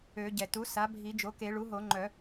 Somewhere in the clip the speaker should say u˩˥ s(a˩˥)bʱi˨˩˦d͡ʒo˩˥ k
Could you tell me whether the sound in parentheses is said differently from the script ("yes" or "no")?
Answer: no